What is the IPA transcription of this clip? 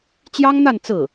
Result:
t͡ɕ j ɑ˥ ŋ n̪ a˥˧ n t͡s ɹ̩˥˩

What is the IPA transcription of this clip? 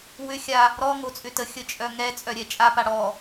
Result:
w ʏ xʲ a | ɾ ɔ ŋ o t͡sʼ ʏ t ə xʲ ə t͡ʃʼ œ ŋ ɛ t͡sʼ œ ɾʲ ɛ t͡ʃʼ a p a ɽ ɔ

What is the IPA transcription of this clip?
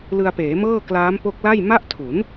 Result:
l ɯ˧ a̯ p eː˩˦ m ɤː˥˩ k l aː˦˥ m p o˦˥ k̚ l a˥˩ j m a˥˩ ʔ tʰ u˩˦ n

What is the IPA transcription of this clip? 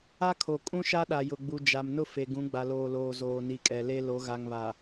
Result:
a˦ kʰ o˨ kʼ ũ˦ ʃ a˦ ɗ a˨ j ʊ˨ ɡ͡b u˨ d͡ʒ a˨ m n ʊ˦ f e˨ ɡ ũ˨˦ ɡ͡b a˨ l oː˨ l oː˨ z oː˨ n i˨˦ kʼ ɛ˨ l e˦ l o˨˦ ɣ a˨ ŋ β a˨

